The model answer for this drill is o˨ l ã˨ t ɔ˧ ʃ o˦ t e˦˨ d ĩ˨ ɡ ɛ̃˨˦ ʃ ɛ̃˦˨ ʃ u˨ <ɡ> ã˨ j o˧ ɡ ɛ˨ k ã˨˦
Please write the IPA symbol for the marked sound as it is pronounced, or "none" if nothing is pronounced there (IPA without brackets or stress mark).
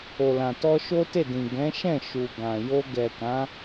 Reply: ɡ